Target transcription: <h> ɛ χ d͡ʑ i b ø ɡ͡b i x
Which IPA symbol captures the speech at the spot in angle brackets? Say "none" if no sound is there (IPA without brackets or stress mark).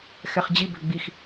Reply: x